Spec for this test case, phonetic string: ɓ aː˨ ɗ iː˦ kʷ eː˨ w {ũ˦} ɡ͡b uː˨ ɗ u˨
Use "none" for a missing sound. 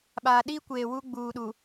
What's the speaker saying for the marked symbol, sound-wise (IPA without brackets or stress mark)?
u˦